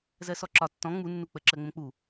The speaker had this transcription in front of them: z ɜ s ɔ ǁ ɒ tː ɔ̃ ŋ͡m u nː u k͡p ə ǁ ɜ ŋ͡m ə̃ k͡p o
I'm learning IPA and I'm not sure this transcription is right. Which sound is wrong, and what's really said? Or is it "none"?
o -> u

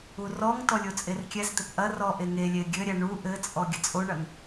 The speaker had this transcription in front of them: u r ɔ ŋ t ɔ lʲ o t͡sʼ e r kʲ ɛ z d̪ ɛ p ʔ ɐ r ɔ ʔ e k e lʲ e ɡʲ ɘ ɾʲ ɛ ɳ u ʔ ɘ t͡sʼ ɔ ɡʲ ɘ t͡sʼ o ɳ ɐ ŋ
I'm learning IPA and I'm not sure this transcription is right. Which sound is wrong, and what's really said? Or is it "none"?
k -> ŋ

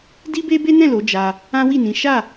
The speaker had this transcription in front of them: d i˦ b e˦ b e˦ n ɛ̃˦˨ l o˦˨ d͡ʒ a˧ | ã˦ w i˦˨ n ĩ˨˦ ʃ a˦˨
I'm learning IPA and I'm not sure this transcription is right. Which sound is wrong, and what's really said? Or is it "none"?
o˦˨ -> o˨˦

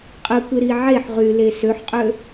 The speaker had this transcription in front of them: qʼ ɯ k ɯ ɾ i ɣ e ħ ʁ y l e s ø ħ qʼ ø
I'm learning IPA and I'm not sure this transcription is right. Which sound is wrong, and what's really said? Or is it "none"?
ɣ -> ʕ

